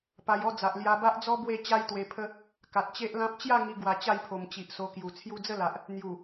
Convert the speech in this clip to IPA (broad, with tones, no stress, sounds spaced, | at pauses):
p a˧ j ɔ˥˧ d͡z a˨ ʔ l j a˧ b a˦ ʔ d͡z ɔ˦ b w e˥˧ t͡ɕ a˦ j t̪ w e˧ pʰ ə˦ | k a˨ t̚ t͡ɕ e˦ ʔ l ã˦ p̚ t͡ɕ j a˥˧ ŋ i˧ ɡ w a˧ t͡ɕ a˥˧ j pʰ o˨˩ m t͡ɕ i˨ ʔ s o˧ k j u˨˩ t͡sʰ j u˧ d͡z ə˥˧ l a˨ ʔ | n̪ j u˨˩